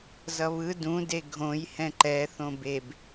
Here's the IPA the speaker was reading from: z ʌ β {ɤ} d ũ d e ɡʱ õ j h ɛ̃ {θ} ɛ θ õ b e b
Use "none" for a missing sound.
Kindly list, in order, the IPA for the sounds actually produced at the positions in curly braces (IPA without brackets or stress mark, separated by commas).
ɯ, ǃ